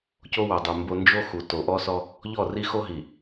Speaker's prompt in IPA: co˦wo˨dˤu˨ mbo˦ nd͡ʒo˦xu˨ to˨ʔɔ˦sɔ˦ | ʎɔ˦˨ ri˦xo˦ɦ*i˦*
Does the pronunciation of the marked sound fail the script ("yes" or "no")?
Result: yes